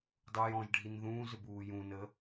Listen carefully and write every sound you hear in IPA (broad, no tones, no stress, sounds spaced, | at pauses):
dˤ u j ɔ̃ ʒ ɖʱ i n ð ũː z ʏ b uː j ũ n ə